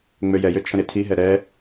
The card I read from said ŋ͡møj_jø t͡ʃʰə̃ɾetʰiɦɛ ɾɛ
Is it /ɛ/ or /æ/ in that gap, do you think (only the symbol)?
ɛ